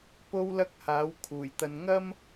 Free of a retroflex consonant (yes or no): yes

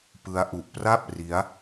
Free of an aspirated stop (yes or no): yes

